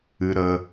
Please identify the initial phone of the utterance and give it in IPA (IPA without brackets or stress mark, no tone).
ɨ